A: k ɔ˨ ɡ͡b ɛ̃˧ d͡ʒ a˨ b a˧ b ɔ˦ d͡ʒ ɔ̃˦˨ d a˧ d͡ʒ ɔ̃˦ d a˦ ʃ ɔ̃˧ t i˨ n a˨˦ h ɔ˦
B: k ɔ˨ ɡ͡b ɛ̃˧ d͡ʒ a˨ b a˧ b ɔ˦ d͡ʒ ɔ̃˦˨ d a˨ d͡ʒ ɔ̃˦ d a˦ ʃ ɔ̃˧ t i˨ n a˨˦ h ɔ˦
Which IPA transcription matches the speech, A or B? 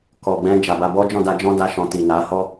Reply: A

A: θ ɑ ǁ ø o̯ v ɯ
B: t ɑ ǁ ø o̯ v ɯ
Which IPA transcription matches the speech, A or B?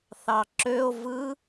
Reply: A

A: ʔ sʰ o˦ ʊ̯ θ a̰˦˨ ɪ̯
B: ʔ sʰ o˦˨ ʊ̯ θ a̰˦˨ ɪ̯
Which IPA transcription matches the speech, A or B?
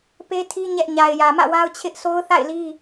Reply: A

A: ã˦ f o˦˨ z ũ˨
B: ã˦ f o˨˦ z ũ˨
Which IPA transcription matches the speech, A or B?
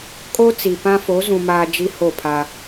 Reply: B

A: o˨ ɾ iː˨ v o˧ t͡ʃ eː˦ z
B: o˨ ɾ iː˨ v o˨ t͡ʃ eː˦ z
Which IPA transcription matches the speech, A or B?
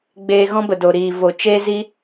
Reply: B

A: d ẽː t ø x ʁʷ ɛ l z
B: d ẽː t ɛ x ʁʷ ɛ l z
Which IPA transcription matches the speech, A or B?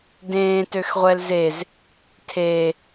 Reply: A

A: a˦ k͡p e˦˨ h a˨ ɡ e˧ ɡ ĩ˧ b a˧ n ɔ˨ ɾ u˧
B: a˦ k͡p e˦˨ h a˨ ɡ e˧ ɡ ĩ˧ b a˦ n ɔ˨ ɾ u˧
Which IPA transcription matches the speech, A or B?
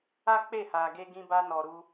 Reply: A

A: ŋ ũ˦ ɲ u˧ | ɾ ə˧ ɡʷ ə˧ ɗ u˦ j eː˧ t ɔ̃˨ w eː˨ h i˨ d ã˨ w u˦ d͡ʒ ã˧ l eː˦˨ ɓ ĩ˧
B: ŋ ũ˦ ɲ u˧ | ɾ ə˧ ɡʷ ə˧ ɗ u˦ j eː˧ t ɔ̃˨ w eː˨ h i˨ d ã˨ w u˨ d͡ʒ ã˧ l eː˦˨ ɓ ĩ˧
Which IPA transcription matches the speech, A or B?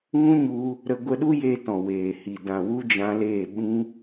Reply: A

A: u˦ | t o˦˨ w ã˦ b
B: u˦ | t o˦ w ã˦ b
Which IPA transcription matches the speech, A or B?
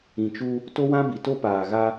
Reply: B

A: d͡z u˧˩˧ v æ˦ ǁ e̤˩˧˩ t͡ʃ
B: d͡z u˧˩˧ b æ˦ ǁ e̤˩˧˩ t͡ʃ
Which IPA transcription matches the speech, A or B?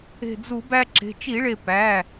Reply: B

